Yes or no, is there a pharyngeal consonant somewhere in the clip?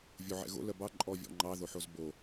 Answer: yes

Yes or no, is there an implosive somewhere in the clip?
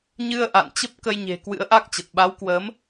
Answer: yes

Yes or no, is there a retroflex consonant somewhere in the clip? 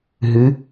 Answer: no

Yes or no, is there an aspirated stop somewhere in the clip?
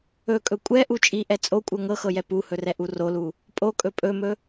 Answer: no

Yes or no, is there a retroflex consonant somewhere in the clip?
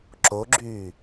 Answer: no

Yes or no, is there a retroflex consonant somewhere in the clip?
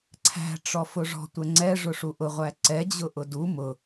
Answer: yes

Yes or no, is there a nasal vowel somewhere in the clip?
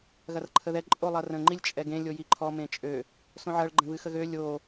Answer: yes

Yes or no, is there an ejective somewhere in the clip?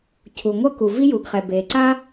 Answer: no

